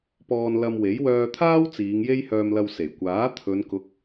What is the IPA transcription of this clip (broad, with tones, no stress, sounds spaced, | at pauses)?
p ɔː˧ n l ɐ˧ m w e˨˥ j w œː˧ t̪ʰ aː˥ w t͡s iː˨˧ ŋ j e˥ j h œː˧ m l ɐ˧ w s e˨˩ j kʷ aː˨˥ t̪ʰ ɵ˨˧ n k ʊ˨˥ k̚